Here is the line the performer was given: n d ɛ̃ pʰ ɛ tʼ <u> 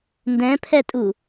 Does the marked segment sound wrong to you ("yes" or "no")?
no